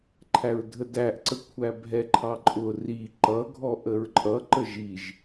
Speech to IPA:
ǃʰæɹdʱədæʔǀə kʷʰæbʱɛǃʰɑǃʼʊ ri ǃʌ ɡʱɔʔəɹǃʼʌ ǃəʒiʒ

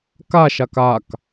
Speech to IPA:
kaʃak ak

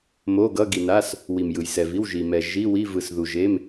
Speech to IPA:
mo˩˧˩ɡʌ˩˧˩ ɡi˩na˩˧˩s | wi˩m jɯ˩jsɛ˩vi˩˧˩wʒi˩ mɛ˩ ʒi˩˧˩wi˩˧˩ vɯ˩sðu˩ ʒe˩˧˩m

